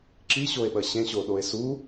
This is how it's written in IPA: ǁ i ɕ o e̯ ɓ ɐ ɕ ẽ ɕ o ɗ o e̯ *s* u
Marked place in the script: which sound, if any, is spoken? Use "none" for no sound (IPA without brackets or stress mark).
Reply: s